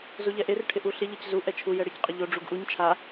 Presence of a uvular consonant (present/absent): present